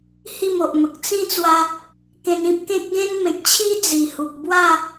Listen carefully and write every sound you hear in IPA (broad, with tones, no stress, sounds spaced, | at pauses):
h i˥˧ m o˨ ʔ m ə˨ k̚ t͡s ĩ˦ t͡s w a˧ | k ẽ˧ n ĩ˦ p̚ k ẽ˦ k̚ ɡ ẽ˦ n m ẽ˨ k̚ t͡ɕʰ i˦ d͡z i˨˩ h u˨ k̚ b w a˥˧